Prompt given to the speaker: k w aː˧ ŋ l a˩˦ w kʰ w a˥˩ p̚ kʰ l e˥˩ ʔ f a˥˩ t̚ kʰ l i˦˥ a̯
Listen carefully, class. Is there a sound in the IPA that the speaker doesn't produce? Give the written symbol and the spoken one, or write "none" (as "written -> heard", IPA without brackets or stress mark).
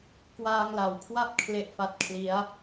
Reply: none